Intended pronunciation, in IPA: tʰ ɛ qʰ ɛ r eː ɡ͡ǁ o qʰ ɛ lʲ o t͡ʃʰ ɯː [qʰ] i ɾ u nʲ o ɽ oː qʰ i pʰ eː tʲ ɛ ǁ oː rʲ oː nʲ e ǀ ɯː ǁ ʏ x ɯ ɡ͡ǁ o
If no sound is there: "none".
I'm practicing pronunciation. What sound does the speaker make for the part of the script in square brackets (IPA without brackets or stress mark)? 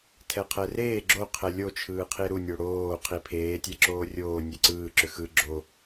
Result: qʰ